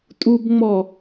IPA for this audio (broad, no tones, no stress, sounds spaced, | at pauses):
tʼ u b ŋ͡m ɔ